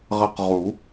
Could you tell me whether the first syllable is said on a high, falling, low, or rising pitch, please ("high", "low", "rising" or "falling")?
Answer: falling